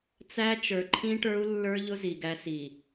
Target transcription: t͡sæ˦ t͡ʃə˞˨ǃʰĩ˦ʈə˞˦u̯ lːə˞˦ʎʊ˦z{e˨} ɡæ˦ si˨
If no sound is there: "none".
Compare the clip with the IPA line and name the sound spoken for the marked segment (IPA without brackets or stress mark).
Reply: i˨